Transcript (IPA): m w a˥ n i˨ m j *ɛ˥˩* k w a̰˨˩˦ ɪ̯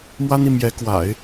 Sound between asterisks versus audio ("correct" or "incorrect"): incorrect